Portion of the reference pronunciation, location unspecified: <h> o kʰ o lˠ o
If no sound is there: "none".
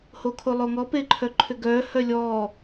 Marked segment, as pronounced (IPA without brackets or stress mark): h